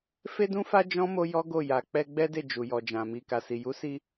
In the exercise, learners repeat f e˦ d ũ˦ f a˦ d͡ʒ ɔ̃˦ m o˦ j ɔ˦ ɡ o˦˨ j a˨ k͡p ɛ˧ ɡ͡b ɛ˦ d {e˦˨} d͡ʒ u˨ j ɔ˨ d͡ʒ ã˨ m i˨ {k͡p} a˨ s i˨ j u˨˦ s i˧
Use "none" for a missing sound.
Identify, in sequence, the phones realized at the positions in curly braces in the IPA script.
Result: e˦˨, k

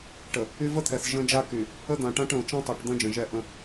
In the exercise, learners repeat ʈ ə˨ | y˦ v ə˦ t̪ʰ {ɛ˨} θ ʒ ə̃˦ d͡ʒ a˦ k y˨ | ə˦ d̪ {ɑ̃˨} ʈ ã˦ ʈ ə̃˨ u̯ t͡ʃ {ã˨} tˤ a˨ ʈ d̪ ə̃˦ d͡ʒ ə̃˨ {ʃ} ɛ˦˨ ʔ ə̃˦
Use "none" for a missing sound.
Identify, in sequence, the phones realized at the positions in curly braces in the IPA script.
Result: ɛ˨, ã˨, ã˦, ʒ

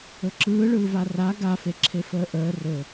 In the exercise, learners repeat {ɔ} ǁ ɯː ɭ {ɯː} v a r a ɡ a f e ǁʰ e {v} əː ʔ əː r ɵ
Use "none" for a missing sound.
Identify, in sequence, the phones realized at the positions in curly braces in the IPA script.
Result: ɵ, ɯː, f

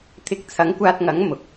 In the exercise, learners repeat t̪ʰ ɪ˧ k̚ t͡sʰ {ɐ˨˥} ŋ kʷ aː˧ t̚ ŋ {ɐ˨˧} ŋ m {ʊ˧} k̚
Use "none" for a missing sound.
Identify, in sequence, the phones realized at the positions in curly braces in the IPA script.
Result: ɐ˨˥, ɐ˨˥, ʊ˨

